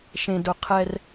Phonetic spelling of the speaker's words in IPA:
ʃ ẽ˨ d ʊ˨ qʰ ɛ˦ r

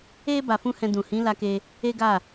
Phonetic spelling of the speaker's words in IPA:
e˦ b a˧ f ũ˦ h ɛ̃˧ d ũ˨ h ĩ˨˦ l a˦ k e˦ | e˦ ɡ a˦˨

